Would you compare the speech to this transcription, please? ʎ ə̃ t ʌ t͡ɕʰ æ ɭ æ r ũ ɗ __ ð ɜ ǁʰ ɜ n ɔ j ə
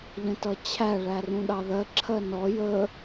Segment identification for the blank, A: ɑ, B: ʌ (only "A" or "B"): A